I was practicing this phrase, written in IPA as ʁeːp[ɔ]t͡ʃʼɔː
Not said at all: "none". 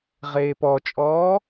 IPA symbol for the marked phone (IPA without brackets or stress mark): ɔ